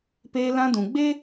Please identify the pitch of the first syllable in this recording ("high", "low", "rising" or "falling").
high